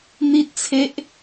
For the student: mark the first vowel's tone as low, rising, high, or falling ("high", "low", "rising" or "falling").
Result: high